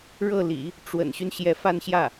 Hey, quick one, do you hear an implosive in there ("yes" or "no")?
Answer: no